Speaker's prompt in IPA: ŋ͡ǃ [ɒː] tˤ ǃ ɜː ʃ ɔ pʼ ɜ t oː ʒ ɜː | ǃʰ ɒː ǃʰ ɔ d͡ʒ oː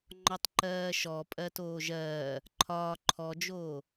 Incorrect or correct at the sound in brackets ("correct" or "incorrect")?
incorrect